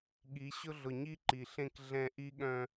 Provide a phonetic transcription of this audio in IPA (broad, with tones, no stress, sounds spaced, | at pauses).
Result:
ɠ i˨˦ ɕ ʊ˦ ɮ ʊ˨ ɲ i˦ ǃ i˨ ɬ ẽ˦ k ɮ ɛ̃˦ ʔ i˦ ɠ œ̃˦